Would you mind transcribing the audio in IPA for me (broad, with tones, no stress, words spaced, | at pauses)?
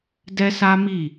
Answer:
dɛ˦sa˦mi˦˨